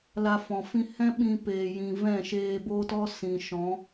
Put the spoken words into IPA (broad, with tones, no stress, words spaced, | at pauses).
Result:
la˧fɔ̃˨fĩ˦ hɛ̃˦ ɓĩ˧peː˨jĩ˨ vɛ̃˦˨ʃeː˧boː˦tɔ˦ sĩ˨ ʃɔ̃˨˦